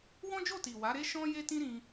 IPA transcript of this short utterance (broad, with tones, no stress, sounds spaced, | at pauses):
w ɔ̃˦ d͡ʒ o˦˨ t i˨ w a˨˦ ɾ e˦ ʃ ɔ̃˦ j e˦ t ĩ˦ ɾ ĩ˧